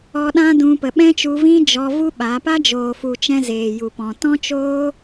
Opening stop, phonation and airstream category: implosive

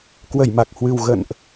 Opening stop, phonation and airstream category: plain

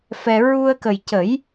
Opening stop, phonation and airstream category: plain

